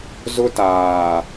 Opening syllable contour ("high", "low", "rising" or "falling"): high